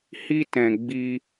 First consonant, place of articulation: glottal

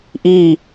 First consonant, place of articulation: glottal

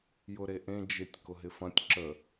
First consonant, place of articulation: palatal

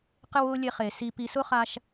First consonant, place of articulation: uvular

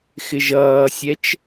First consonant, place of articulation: velar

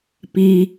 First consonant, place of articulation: labial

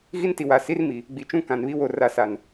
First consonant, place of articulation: velar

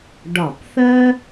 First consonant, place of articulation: retroflex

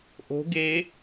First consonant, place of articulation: glottal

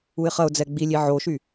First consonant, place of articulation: uvular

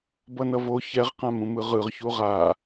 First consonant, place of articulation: labial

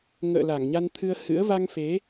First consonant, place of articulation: velar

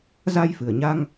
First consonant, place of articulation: alveolar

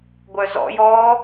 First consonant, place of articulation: velar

